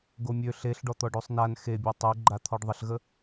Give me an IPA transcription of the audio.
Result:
ɡomʲø ɬeɬɖɔt̪ɔɖ osˤnan xebʲɔ tˤøɡ͡ǃa t̪ʰɔɖðˤəɬɣə

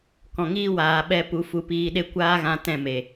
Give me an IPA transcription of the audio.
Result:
kɔ̃˨ŋiː˦ waː˨ɓɛ˧ pu˨˦fu˧piː˧ɗe˦ kʷaː˦ɣã˧ tɛ̃˦˨ me˨

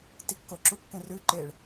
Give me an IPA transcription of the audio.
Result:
tikːo ǁukːẽrʉ ǃeɭ

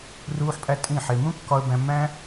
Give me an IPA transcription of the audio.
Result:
ruː˧ħpʼæ˧ tʼĩ˦˨ħe˧ mũ˦kːɒ˧ə̯bæ̃˧mːæ̃˦

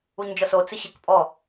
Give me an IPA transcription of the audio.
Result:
uɲd͡ʒɔso t͡sɪɕɪk pʼɔ

